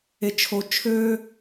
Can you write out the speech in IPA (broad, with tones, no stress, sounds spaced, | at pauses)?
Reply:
e˥ t͡ʃʰ o˥ t͡ʃʰ ø˥